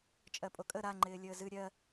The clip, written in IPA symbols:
t͡ʃʼ ɜ pʼ o kʼ ə ɾ a ŋ͡ǃ ɪː lʲ əː z ɨ ɾʲ ɜ

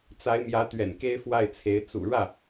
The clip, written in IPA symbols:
t͡s a˧˥ ɪ̯ m j ä˧˥ t̪ ɥ ɛ̰˨˩ n k e˥ ɪ̯ f w a˥˩ ɪ̯ t͡sʰ e˧˥ ɪ̯ t͡s ṵ˨˩ ɻ ä˥˩

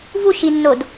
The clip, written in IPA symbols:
v u ʃ i nː o d

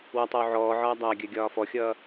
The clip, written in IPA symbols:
w ɒ tˤ œ w ʕ ɔː ʕ ɒː dˤ a ɡʲ œ ɡʲ ɒː f ɔ xʲ ʌː

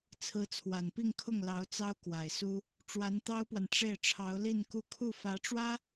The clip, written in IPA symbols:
t͡sʰ ɹ̩˧˥ t͡sʰ w a˨˩ n p i˥˧ ŋ kʰ ʊ˥˩ ŋ l ɑ˧˥ ʊ̯ t͡s ɑ˥ ʊ̯ k w a˨˩ ɪ̯ s u˥ | ʈ͡ʂ w a˧˥ n t̪ ɑ˥ ʊ̯ p w a˨ n ʈ͡ʂ e˥˩ ɪ̯ ʈ͡ʂʰ ɑ˧˥ ʊ̯ l i˥˧ n k u˥˧ kʰ u˥˩ f ä˧˥ ʈ͡ʂ w ä˥

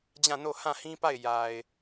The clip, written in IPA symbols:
d͡ʑ ã˦˨ n o˦˨ h ã˦˨ h ĩ˦ p a˦˨ ɪ̯ j a˨ ɪ̯

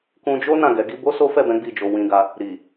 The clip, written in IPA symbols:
k ũ˧ d͡ʒ o˦ n ã˦˨ ɡ ɛ˨˦ ɡ i˦ b o˦ s o˦ f ɛ˦˨ b ɛ̃˨˦ ɡ͡b i˦˨ d͡ʒ o˧ w ĩ˧ ɡ a˧ | ɾ i˨

